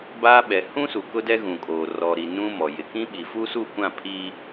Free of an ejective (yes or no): no